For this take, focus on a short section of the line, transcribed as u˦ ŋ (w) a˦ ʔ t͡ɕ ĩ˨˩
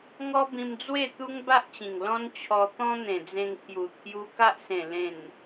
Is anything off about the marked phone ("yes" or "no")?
yes